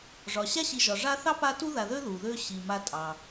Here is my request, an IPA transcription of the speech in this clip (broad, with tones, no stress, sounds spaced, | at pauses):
ʐ ɒ˩ ɕ a˥ ɕ i˨ ʒ ɒ˩ ʐ a˦ θ ɑ˥ p a˦ t u˥ ð a˨ ð ø˥ ð u˩ ð ø˦ ɕ i˩ m a˨ tʼ ɑ˩